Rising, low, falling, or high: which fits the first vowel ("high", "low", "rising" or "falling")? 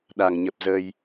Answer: low